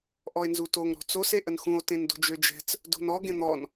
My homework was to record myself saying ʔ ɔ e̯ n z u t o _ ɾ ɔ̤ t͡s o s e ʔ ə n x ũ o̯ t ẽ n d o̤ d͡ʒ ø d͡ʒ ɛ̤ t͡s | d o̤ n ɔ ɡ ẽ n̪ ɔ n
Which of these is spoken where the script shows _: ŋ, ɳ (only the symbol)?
ŋ